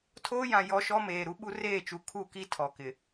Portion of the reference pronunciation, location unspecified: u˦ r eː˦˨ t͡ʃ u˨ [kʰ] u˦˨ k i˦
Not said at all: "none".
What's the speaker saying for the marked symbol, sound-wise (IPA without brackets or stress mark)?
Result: kʰ